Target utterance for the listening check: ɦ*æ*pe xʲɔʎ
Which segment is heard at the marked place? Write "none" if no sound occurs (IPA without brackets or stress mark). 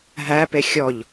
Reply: æ